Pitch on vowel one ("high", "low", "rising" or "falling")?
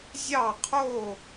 falling